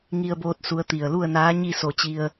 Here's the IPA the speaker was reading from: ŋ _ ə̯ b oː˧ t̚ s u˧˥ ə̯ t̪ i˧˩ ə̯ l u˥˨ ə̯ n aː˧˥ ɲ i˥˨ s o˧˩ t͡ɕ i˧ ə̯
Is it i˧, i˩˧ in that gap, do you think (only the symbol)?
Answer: i˧